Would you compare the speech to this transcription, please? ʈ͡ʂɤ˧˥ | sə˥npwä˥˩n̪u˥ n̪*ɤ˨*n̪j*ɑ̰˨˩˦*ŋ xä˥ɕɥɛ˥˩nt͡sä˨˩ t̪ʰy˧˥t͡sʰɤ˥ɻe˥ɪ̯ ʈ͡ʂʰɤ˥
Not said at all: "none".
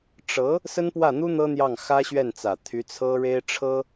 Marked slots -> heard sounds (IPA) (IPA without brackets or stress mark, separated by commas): ɤ˥, ɑ˥˩